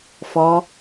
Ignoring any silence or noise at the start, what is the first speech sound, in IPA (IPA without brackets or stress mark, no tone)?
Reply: f